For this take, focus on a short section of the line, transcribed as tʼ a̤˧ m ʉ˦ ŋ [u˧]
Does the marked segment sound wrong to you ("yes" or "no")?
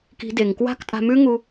no